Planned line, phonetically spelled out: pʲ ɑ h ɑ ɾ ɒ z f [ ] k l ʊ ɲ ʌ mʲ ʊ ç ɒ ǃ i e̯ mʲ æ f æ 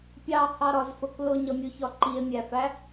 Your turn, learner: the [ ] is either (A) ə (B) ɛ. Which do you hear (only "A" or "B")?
A